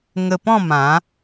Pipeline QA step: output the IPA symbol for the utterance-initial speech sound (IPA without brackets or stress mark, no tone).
ŋ